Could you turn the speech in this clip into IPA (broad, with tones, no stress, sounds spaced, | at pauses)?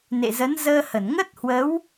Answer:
n ḛ˧˨ z ə˨˦ n z əː˧ h ə˧˩ n ŋ ə˦˥ t̚ h w ə˨˦ w